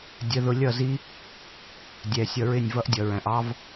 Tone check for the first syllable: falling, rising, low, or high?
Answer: rising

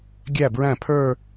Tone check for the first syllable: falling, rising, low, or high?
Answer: falling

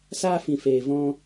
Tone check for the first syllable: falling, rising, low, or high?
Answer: high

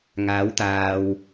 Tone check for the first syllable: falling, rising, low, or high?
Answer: rising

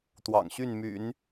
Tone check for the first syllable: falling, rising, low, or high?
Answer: low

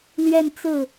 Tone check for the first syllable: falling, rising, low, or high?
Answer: falling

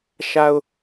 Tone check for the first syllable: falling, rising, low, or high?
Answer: high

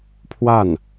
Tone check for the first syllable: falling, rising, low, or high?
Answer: falling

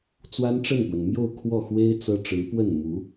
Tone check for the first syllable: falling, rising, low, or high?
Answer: high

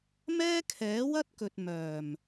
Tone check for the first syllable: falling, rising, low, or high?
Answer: high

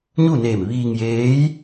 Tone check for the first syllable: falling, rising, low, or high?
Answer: falling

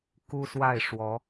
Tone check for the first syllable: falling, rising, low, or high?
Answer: high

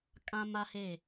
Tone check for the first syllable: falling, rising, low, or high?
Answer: high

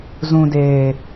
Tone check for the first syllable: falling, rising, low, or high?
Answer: low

